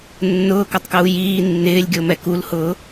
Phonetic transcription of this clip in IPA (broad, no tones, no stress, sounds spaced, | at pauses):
nː ʊː k ɔ tˤ k uː j iː nː ɪː lʲ ɡʲ o m ɛ k u l h ʊː